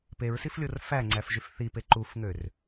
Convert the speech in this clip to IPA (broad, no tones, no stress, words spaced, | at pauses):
peɹsiflʲor fæŋ͡ǀæfʒyf θipe ǃufŋør